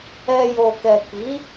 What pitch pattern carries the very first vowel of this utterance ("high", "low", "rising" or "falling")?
low